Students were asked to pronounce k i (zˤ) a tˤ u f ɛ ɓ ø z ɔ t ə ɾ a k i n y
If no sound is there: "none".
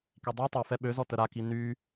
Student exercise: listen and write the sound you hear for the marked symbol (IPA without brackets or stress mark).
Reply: dˤ